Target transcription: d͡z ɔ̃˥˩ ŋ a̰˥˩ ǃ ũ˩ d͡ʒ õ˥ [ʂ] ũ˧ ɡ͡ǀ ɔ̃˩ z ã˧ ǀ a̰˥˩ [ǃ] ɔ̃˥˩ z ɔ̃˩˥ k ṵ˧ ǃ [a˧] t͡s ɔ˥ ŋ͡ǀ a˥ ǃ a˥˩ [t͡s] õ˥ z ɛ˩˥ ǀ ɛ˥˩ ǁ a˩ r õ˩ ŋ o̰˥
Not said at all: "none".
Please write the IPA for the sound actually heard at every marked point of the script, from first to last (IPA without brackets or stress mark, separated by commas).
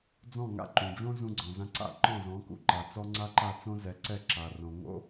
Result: z, ǃ, a˩, t͡s